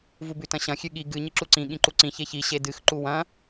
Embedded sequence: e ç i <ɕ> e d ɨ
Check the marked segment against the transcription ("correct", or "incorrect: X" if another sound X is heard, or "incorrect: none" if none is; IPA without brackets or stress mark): correct